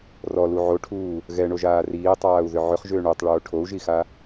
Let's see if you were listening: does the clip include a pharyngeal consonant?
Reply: yes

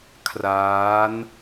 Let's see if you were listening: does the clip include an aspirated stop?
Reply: yes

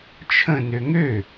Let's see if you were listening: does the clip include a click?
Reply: no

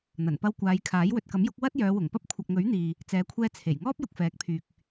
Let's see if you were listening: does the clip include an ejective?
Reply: no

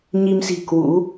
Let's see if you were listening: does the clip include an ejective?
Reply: no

